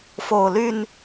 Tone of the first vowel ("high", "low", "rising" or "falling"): low